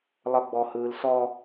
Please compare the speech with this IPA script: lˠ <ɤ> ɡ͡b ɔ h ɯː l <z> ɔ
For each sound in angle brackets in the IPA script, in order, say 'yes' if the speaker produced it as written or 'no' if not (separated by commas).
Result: yes, no